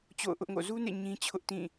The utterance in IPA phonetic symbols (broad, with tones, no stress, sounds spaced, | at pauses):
t͡ɕ o̰˦˨ ʊ̯ ʔ ʊ˦ ʔ ŋ o̰˦˨ z u˦ n ḛ˦˨ ɲ ĩ˦ t͡ɕʰ ʊ˦ ʔ t ĩ˦˨